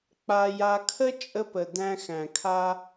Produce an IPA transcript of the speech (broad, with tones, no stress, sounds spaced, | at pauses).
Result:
k͡p a˧ j a˧ kʰ ə˥ t͡ʃʼ ə˧ p ə˩ d æ̃˧ x æ̃˩ kʰ a˧